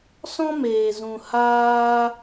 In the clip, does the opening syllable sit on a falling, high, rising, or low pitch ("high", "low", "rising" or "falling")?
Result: high